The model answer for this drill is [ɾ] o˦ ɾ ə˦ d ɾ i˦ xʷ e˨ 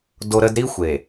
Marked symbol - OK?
no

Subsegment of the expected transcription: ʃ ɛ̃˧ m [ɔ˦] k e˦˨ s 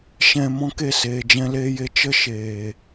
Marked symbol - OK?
no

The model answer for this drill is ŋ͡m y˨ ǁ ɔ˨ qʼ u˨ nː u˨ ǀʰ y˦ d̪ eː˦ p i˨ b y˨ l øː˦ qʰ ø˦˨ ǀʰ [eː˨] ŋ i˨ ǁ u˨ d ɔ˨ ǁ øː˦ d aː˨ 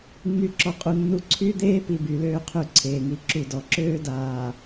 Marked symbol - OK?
yes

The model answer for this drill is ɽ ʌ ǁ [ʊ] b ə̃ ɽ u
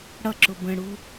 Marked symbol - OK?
yes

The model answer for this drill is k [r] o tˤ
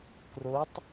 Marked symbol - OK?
yes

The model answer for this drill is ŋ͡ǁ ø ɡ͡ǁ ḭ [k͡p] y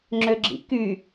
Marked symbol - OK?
no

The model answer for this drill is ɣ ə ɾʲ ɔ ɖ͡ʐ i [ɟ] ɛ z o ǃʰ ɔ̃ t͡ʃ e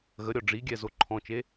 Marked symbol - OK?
no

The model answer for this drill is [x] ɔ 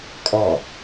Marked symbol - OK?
no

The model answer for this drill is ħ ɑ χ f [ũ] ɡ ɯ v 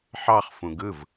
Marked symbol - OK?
yes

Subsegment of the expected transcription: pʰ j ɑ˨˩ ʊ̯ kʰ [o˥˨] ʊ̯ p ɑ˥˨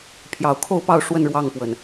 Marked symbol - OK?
yes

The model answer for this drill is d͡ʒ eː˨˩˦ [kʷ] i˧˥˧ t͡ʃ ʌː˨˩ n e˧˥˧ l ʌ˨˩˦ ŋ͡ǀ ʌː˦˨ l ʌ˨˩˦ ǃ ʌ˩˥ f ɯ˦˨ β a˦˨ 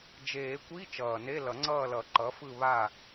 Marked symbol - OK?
yes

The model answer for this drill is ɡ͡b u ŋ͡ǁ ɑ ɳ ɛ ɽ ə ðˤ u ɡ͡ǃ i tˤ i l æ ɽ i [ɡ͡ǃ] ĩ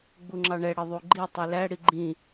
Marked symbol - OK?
yes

